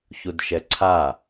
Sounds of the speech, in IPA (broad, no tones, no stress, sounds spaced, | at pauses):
ç u d ʃ ɛ ǀʰ a